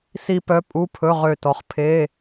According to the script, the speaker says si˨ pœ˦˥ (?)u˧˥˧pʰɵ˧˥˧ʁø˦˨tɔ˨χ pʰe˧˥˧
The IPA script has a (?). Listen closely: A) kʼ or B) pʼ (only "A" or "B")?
B